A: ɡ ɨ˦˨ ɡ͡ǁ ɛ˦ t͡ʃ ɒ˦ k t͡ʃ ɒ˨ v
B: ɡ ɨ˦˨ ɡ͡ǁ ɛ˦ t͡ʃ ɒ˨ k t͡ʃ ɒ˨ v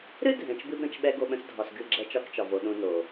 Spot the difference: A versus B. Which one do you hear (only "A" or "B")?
A